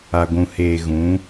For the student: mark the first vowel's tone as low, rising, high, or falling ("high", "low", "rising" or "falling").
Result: low